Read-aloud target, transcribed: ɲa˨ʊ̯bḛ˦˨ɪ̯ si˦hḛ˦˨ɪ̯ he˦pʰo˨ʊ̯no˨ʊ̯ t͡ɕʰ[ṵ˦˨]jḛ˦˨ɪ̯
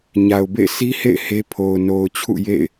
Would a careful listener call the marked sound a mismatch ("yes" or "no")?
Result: no